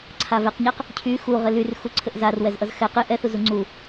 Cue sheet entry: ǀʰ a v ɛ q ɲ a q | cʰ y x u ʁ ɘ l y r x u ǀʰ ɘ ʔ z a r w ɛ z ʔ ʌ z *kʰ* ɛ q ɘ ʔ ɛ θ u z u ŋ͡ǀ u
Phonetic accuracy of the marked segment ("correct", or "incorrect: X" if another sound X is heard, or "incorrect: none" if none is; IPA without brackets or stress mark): incorrect: x